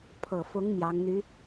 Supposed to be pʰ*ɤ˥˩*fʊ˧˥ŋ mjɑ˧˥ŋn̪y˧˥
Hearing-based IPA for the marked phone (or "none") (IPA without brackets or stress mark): ɤ˨˩